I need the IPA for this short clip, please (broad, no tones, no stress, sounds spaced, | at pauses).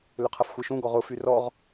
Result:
l ʏ qʰ ɐ f xʷ e ʃ ũ ɡ ɔ ʁ ʊ f y r ɔ ʁ